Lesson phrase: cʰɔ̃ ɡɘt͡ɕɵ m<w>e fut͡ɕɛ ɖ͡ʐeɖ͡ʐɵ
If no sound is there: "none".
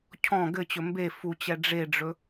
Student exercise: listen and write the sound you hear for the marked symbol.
b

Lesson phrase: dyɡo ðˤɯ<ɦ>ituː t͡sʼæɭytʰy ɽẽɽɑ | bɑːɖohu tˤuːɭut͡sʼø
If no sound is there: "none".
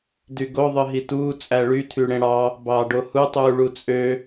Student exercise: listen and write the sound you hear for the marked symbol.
ɦ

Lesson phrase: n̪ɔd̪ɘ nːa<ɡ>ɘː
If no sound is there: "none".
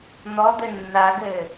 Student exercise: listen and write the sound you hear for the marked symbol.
ɡ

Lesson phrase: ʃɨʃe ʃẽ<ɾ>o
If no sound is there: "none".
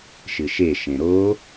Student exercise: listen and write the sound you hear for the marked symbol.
ɾ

